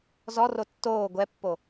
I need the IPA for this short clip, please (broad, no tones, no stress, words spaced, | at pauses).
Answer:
zɔro tːoː ɡʷɛpːo